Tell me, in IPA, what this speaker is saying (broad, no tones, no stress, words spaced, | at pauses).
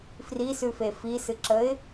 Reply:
frisʉfe fisɨǁəɪ̯